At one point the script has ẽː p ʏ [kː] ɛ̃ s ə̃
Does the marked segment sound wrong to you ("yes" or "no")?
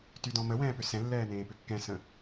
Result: no